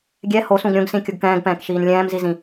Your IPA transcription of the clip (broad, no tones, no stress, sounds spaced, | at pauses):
ɡʲ ɛ h o s ũ ɡ ɾʲ õ ɡ s ĩ kʲ u ɡ k ɛ̃ː ɡ p ɛ̃ː k ʃ iː n lʲ ɛ̃ː m z i z ĩ